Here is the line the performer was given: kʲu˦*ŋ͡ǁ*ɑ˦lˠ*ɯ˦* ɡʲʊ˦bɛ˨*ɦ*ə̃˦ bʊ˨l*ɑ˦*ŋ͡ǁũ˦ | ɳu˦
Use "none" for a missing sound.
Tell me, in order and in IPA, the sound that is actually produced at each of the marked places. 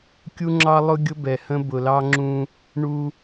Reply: ŋ͡ǁ, ʊ˦, h, ɑ˦

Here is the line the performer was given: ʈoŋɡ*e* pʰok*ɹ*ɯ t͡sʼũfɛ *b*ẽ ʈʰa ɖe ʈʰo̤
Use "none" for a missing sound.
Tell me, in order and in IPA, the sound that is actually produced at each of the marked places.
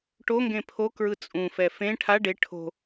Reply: ẽ, ɹ, f

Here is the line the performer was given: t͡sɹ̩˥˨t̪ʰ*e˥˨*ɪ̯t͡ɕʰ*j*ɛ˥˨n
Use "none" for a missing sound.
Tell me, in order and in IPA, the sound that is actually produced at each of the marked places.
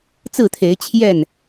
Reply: e˨˦, j

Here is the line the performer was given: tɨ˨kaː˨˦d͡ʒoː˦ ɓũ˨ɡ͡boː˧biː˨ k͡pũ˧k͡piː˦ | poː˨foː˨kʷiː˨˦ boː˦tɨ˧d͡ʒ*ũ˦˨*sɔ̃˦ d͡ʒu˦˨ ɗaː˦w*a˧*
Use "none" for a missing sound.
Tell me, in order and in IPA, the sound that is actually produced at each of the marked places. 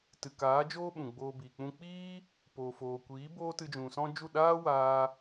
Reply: ũ˨, aː˧

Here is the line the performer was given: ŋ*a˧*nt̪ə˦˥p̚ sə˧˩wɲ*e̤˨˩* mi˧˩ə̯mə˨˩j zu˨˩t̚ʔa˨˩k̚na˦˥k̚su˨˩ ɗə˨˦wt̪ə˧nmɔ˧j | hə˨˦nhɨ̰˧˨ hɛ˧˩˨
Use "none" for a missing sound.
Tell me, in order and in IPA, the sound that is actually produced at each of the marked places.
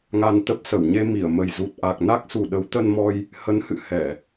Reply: a˧, e˧

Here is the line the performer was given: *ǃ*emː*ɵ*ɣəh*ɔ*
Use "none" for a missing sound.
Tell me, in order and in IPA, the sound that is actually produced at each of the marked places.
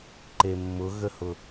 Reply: ǃ, ʊ, ʊ

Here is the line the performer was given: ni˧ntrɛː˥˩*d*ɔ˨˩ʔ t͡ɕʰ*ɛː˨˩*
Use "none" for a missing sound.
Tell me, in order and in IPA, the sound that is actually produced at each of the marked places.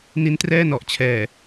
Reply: n, ɛː˨˩

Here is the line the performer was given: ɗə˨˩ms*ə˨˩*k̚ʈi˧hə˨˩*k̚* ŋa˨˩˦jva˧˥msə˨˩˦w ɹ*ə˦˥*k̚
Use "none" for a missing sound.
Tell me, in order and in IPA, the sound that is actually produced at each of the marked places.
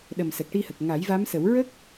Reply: ə˨˩, k̚, ə˦˥

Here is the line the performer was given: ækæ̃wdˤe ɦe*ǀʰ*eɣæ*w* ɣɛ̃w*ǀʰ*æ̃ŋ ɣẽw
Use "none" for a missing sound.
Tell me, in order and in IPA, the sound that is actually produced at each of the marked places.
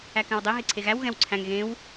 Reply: ǀʰ, w, ǀʰ

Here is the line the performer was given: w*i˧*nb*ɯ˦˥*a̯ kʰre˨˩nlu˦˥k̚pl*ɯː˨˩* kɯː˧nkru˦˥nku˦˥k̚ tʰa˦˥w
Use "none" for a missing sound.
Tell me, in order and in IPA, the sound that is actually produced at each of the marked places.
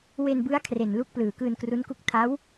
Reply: e˧, ɯ˦˥, ɯː˨˩

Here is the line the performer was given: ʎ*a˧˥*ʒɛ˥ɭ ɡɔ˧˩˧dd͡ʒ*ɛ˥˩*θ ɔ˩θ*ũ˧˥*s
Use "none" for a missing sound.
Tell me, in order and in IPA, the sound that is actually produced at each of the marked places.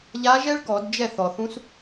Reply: a˧˥, ɛ˥˩, ũ˧˥

